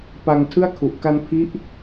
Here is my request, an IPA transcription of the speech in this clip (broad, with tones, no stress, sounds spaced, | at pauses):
p a˧ ŋ tʰ ɯ˥˩ a̯ kʰ u˨˩ ʔ k a˧ n pʰ i˦˥ ʔ